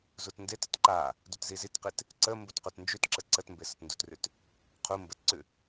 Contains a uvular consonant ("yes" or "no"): yes